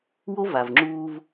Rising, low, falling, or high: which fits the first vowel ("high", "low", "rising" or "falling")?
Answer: high